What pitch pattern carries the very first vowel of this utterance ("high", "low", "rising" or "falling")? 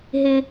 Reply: high